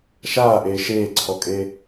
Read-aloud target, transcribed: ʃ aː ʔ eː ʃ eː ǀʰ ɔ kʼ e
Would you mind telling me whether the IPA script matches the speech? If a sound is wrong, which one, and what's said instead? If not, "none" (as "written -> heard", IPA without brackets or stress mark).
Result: none